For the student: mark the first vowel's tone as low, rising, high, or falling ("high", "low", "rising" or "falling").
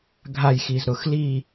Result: falling